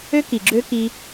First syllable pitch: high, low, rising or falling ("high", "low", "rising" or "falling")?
high